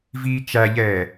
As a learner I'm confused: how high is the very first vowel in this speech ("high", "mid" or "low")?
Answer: high